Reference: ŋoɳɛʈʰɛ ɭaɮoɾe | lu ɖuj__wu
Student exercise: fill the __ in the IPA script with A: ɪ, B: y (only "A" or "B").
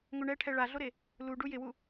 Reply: A